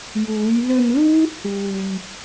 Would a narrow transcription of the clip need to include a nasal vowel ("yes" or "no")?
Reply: no